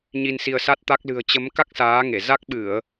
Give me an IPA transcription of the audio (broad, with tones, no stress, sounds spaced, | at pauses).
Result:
ɲ i˧ n s i˧ ə̯ s a˦˥ t̚ t̪ a˦˥ k̚ l ɨ̤˨˩ ə̯ t͡ɕ ə˨˦ m k a˦˥ k̚ s aː˨˦ ŋ e˧˩ z a˦˥ k̚ ɓ ɨ˧˩˨ ə̯